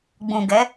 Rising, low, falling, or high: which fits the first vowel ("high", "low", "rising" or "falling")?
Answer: low